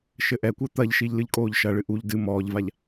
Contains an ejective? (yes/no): yes